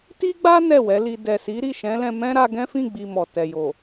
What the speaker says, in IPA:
t i˦ ɡ͡b a˦ n ɛ˦˨ w ɛ˨˦ l i˧ d ɛ˨ s i˨˦ ɾ i˦˨ ʃ ɛ̃˨˦ l ɛ̃˧ m ɛ̃˦ ɾ a˧ ɡ ɛ̃˦ f ĩ˦˨ ɡ͡b i˨ m ɔ˨ t ɛ˨ j o˨

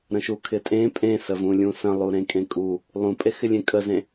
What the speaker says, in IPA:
ɾ ə̃ ʃ u kʰ ɪ tʼ ẽ pʼ ẽ s ə v ũ lʲ ũ s ə̃ lˠ u ɾ ẽ kʼ ẽ kʼ u | lˠ ũ pʼ e x ɪ lʲ ẽ kʼ ə z ẽ

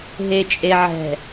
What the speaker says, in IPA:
ɦ e˨ t͡ʃʼ e˨ ʕ ɛ̤˨

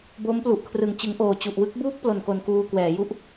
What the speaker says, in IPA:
b o˦˥ m p l u˨˩ ʔ kʰ r ɯ˨˩ ŋ t͡ɕ ɯ˩˦ ŋ ʔ oː˨˩ t͡ɕ u˨˩ ʔ w ɯ˥˩ k̚ b uː˥˩ k̚ p l o˨˩ n k o˧ n k uː˧ k w ɛː˩˦ j u˥˩ ʔ

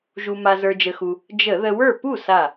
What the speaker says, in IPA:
ʒ u˧ m a˧ z ə˞˧ d͡ʒ ə˧ x u˧ | d͡ʒ ə˧˩˧ ð ə˧ w ə˞˥˩ p u˥˩ s a˧˩

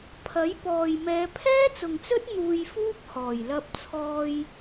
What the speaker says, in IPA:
pʰ ɐ˨˥ j p ɔː˨ j m ɛː˨˧ pʰ ɛː˥ t͡s ʊ˨ ŋ t͡s ɵ˥ t̚ n̪ uː˧ j f uː˥ p̚ h ɔː˨˩ j l ɐ˧ p̚ t͡sʰ ɔː˧ j

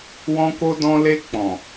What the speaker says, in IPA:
w ɔ̃˧ k o˧ d ɔ̃˧ l e˧ k͡p ɔ̃˨

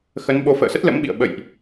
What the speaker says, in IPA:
x ə˨˦ n ɓ o˧ f ə̰ː˧˨ s ə˦˥ t̚ l ə̰˧˥ m ɓ ḭ˧˨ ə̯ ɓ ə̰˧˨ j ʔ

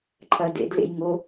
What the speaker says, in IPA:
ǃʰ ɐ d ḛ d l ḛ j ŋ o

